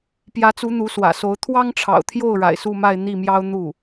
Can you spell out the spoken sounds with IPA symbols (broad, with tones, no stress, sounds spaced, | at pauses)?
p j ä˧˥ t͡s u˧˥ n̪ u˧˥ s w ä̰˨˩ s o˧˥ ʊ̯ t̪ʰ w ɑ˥ ŋ ʈ͡ʂʰ ɑ̰˨˩ ʊ̯ t̪ʰ j o˥˩ ʊ̯ ɻ a̰˨˩ ɪ̯ s u˥˧ m a˥˧ ɪ̯ n̪ i˥˩ m j ɑ˥ ʊ̯ n̪ u˥˩